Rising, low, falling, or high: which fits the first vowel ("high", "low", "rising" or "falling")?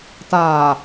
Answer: low